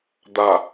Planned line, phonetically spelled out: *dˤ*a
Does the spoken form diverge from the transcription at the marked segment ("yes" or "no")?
yes